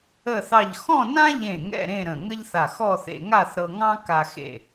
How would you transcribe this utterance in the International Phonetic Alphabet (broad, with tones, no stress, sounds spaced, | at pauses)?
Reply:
ə˥˧ θ ɑ˥˧ ʎ x ɔ̃˥˧ n ã˥ ʎ ẽ˧˩ ŋ ɛ̰˥˧ ɾ ẽ˥˧ ɾ ə̃˧˩ ŋ ə˥ ʎ θ a˧˩ x ɔ˥˧ θ ḛ˧ ŋ a˥˧ θ ɾ ɤ˧ ŋ ɑ̃˥ k a˧ x ḛ˧˩